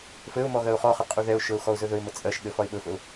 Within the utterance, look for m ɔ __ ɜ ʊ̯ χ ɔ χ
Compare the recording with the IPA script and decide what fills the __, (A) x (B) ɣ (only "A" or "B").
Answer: B